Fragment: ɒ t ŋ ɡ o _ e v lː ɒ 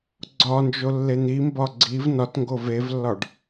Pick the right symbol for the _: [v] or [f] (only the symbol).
v